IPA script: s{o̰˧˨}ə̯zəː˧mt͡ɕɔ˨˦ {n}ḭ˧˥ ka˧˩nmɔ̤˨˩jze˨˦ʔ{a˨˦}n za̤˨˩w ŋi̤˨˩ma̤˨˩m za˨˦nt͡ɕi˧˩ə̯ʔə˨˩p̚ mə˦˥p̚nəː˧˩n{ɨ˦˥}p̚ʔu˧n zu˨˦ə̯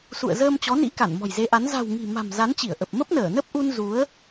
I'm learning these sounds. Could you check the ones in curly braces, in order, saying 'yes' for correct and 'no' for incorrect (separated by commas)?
no, yes, yes, no